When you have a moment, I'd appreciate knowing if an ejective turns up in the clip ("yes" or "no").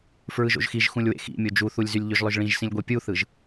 no